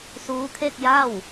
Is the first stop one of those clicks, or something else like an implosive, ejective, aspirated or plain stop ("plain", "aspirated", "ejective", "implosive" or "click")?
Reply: aspirated